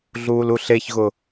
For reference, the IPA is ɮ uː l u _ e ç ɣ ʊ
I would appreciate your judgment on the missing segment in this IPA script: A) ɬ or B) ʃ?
A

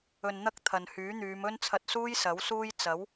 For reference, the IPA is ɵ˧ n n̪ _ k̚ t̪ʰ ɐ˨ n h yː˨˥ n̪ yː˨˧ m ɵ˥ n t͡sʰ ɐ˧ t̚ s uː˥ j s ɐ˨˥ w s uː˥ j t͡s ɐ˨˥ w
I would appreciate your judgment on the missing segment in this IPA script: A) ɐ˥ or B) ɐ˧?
A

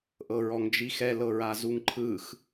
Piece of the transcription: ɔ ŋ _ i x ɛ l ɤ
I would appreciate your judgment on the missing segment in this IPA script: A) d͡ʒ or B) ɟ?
A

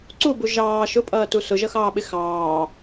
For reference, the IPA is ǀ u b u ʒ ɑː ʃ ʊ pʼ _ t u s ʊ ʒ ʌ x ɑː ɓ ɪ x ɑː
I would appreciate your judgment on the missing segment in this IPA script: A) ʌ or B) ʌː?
B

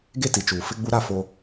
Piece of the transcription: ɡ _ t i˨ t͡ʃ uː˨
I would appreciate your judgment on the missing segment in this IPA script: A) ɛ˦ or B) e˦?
B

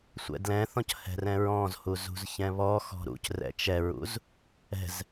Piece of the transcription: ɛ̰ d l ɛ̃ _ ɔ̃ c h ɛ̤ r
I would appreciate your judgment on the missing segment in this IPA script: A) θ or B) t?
A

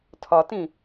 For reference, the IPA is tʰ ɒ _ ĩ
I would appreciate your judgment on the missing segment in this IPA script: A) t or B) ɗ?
A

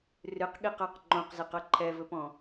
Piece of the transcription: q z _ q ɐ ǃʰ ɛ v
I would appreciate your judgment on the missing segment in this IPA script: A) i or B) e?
B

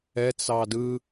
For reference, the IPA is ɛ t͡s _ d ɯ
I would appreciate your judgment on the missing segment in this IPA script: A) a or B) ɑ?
B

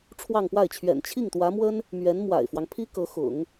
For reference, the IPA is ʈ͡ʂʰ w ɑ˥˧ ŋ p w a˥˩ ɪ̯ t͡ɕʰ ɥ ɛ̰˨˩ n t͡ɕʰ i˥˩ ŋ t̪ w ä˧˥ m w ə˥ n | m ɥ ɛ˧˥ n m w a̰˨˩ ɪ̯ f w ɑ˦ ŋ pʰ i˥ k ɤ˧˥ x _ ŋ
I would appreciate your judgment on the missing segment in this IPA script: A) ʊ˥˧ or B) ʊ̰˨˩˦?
B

